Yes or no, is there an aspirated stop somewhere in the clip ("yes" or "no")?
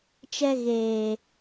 no